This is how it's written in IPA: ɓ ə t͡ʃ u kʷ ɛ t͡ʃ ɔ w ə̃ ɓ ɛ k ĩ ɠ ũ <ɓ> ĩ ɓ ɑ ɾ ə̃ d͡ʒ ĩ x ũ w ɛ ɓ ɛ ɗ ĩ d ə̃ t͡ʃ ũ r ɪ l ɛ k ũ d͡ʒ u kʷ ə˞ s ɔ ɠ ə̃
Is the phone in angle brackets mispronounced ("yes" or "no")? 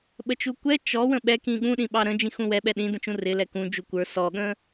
yes